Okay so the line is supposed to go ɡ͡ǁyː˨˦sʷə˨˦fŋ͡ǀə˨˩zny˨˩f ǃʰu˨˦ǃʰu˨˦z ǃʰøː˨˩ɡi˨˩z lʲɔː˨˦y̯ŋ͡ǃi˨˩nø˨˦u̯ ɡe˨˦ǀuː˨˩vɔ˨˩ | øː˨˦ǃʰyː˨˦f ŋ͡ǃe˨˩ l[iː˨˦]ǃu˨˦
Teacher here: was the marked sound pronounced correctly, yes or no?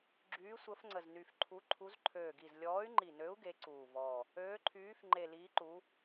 yes